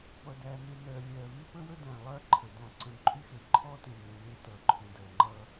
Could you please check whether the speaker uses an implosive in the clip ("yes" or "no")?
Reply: no